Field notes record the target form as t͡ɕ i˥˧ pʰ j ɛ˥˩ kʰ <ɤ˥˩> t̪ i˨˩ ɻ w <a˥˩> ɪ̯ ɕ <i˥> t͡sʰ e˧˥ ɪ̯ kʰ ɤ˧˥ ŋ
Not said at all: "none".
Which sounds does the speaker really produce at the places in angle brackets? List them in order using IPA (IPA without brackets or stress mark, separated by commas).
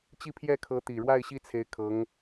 ɤ˧˥, a˥˩, i˥